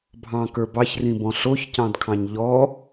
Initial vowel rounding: unrounded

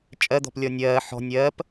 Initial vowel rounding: unrounded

